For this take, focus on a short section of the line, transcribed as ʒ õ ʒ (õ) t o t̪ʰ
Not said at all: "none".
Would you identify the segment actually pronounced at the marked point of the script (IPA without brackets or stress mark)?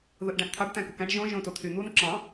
õ